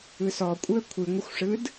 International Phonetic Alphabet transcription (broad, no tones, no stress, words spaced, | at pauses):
ɯsɔkʷʼɯə̯ kʷʰɨŋʷəxʷʂɯd